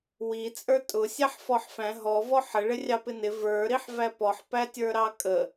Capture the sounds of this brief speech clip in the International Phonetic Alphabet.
w i t͡sʼ ə˞ tʼ ʊ sʲ æ ħ f ɔ ħ f æ̃ ɦ ɔ v ɔ ħ ə ɭ ɪ rʲ ɑ p ɪ n ɪ v ə˞ ɾ i ħ v æ p ɔ ħ p æ tʲ ə˞ ɾ ɑ kʼ ə

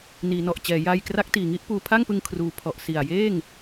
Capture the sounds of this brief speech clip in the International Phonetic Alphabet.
n iː˩˦ n ɔ˨˩ ʔ t͡ɕ ɛː˩˦ j aː˧ j k r a˦˥ k̚ t iː˨˩ ŋ i˥˩ ʔ p uː˧ pʰ a˥˩ ŋ p ɯ˧ ŋ kʰ r uː˧ pʰ ɔ˨˩ ʔ s i˨˩ a̯ j eː˥˩ ŋ

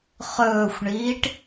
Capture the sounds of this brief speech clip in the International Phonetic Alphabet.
χ ɵː xʷ ɳ iː ʈ

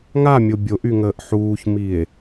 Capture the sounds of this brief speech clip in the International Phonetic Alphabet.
ŋ a mʲ o bʲ o ʔ y ŋ əː ʔ ħ uː ç m i e̯

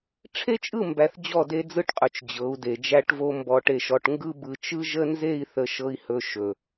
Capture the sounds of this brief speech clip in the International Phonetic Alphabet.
ʈ͡ʂʰ e˦ t͡ʃʼ ɯ˦˨ m b æ˨ θ d͡ʑ ɔ˦˨ d e˦ d͡z ɯ˦ ʈ qʼ ɵ˨ t͡ʃ d͡ʑ ɤ˨˦ u̯ d e˨ d͡ʒ æ˦ ʈ v o˦ m b ɔ˨ ʈ e˨ ʃ ɔ˨ ʈ ŋ ɡ ɯ˦ b ɯ˨ t͡ʃ ɯ˦ ʒ ə˦ n z e˦˨ i̯ θ ə˨ ʃ ɤ˨ i̯ h ɵ˨ ʃ ɵ˨

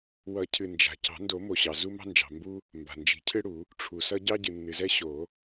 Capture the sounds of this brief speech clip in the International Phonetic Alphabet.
w ʌ˨˩˦ cʰ ɨ˩ n d͡ʒ a̤˩ c ɑ̤˨˩˦ n d o˨˩˦ m o˩ ɕ ɑ˩ z u˦ m ɑ̤˦ n d͡ʒ ɑ̤˩ m b u˦ | m b a̤˩ n d͡ʒ i̤˨˩˦ cʰ ɨ˦ ɽ u˨˩˦ | ʈ͡ʂʰ u˩ s ʌ˦ ɟ ɑ˦ ɟ ɨ˩ nː ɨ˩ z ɛ˦ ɕ o˨˩˦

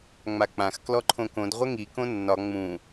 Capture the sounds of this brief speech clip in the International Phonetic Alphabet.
ŋ͡m a k͡p ã x k l ɔ ǃʰ õ k õ d ʁʷ ə ŋ i k õ nː ɒ ŋ͡m ũ

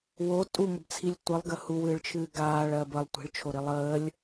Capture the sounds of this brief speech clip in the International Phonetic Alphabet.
w o tʼ u ŋ ə b t͡sʰ i lʲ tʷ ɨ lˠ ɡ ə h u w ɨː ɭ t͡ʃʰ ɨː ɡ aː ɭ ɜ b ə lˠ tʷ i̤ ɭ t͡ʃʰ o ɾ i lˠ əː lʲ

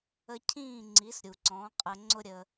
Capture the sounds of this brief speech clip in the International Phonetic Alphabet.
ə˧ cʰ ĩː˥˩ ŋ͡ǀ i˩˥ s ɾʲ u˩ ǀ ɔ̃ː˩˥ qʼ əː˧ ŋ͡ǀ ʊ˥ ɾʲ ə˧

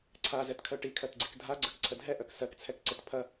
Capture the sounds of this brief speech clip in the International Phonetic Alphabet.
ǀʰ a z ɛ t kʰ œ ʈ i kʰ ɜ t ɡ͡ǀ i k dʱ a ɡ͡ǀ ɜ k ǀʰ ə dʱ ɛ ʔ œ k s ɜ k t͡sʰ ɛ k ǀ ə t pʰ ɐ

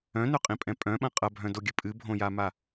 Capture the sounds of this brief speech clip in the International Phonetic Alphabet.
œ̃ n œ qʼ ĩ pʼ ɛ̃ pʼ œ̃ ɓ ɐ̃ qʼ ɐ bʱ œ̃ d o ɡʲ ɨ pʼ ɨ bʱ õ j a m a

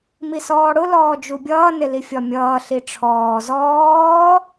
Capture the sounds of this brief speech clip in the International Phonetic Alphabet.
m i s ɔː ɽ ʊ l ɔː d͡ʒ u bʲ ʌː n ɪ l i fʲ ɒ mʲ ʌː ɬ i ʈ͡ʂʰ ɔː z ɔː

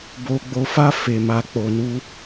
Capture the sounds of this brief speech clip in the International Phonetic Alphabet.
b o˧ ɡ͡b o˧ f a˦ f e˧ m a˧ k͡p o˧ n u˦

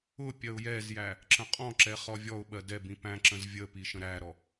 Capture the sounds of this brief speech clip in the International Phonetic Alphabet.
ʊ pʲ ɜ ʊ̯ j ɛ z j æ | ǁ ə̃ qʼ ɔ̃ ǁ ɛ χ ɔ vʲ ɔ ʊ̯ ɓ ɜ d ɛ b ĩ p æ̃ ǁ ə̃ z vʲ ə p i ʃ ə̃ ɾ æ ɾ ɔ

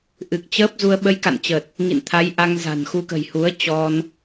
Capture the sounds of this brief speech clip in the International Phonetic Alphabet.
ʔ ɨ˨˩ k̚ t͡ɕ əː˦˥ p̚ z u˧ ə̯ ɓ ə˧ j k a̰˧˨ n t͡ɕ ə˨˩ t̚ | ŋ ḭ˧˨ n t̪ʰ a˨˦ j ʔ a˧ ŋ z a̤˨˩ n x u˧ k ə̤˨˩ j h u˨˦ ə̯ t͡ɕ ɔ˧ n

